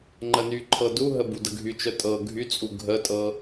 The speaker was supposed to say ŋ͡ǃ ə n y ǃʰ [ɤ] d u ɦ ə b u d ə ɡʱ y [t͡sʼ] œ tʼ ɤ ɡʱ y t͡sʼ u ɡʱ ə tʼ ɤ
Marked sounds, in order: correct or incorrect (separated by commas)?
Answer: correct, incorrect